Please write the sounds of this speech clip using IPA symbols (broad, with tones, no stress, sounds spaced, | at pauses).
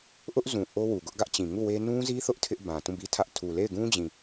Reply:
ʔ ʊ˦ ʔ z ũ˨ ʔ o˦ w u˨ ɡ ʊ˦ ʔ ɡ ä˦ ʔ t͡ɕ ĩ˨ ŋ u˦˨ w e˦ n ũ˦ z i˦ θ ʊ˦ ʔ tʰ ɪ˦ ʔ b ã˨ t ũ˦˨ b i˦ tʰ ä˦ ʔ tʰ u˨ l e˦˨ ɪ̯ ɡ ũ˦ d͡ʑ ĩ˨